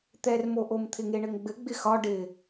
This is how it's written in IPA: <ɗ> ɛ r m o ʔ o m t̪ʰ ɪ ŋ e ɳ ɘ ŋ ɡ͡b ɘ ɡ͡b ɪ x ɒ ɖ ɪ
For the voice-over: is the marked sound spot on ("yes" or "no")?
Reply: no